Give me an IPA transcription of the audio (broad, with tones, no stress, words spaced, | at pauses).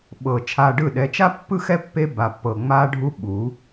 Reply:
ɓɤ˨ t͡ʃʰaː˧ɖɯ˦˨ɗɛ˧ t͡ʃa˦pːɯ˦xɛ˦ pːe˦ ba˧pːɤ˧ ŋ͡maː˦ɖʱu˦ɓu˨˦